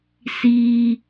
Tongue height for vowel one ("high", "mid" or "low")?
high